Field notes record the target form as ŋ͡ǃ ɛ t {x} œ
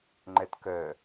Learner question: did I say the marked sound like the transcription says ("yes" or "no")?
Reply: no